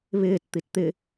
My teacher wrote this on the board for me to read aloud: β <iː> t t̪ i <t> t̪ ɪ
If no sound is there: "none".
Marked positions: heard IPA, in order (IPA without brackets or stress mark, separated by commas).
ɪː, t